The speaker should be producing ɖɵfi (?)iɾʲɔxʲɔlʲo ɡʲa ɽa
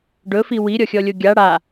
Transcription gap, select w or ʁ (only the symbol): w